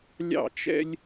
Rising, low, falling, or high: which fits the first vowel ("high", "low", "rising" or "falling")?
falling